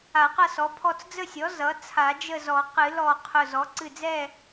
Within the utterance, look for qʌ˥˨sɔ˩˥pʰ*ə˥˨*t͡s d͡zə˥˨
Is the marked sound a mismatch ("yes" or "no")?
yes